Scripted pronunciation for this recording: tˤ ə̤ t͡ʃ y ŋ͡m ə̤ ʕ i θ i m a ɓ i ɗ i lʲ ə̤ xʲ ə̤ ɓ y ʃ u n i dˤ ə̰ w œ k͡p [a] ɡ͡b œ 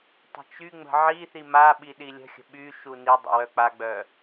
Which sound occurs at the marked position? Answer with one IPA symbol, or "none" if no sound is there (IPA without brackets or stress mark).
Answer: a